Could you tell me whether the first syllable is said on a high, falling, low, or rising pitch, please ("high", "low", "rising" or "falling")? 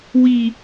low